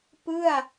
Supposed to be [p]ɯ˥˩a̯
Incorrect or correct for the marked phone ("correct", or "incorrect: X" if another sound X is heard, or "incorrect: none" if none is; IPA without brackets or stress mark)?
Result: correct